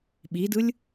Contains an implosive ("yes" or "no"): yes